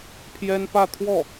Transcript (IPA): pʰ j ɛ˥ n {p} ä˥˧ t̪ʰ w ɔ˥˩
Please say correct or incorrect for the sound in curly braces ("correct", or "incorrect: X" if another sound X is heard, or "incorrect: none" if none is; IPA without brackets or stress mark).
correct